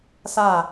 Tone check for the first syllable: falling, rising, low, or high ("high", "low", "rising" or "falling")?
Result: falling